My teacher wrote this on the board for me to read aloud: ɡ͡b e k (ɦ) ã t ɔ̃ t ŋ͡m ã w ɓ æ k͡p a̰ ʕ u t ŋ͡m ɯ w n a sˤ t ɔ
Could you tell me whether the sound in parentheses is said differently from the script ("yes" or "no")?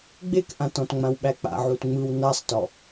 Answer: yes